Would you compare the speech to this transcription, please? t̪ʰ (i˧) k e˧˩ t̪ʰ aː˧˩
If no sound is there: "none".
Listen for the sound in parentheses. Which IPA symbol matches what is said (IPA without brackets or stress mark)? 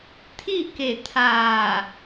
i˥˨